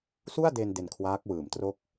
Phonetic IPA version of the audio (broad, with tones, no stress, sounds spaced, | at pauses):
s u˥˩ a̯ d e˧ n d e˧ n kʰ w aː˦˥ k̚ w ɯː˩˦ m t r o˥˩ k̚